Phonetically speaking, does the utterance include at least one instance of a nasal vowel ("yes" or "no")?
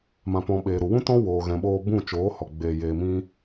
yes